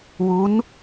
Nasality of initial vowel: oral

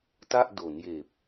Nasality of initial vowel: oral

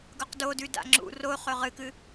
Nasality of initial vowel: oral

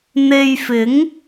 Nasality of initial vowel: oral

